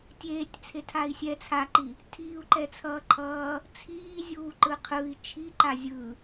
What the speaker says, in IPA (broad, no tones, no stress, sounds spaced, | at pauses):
tʲ eː tʲ t͡sʰ e tʰ a i̯ sʲ ɛ t͡sʰ a ǃ i | tʰ iː u̯ ǃ ɛ t͡sʰ ʌː ǃʰ ʌː | t͡sʰ iː zʲ uː ǃ ɯ qʰ ɯ i̯ t͡ʃʰ i ǃ a zʲ ɯ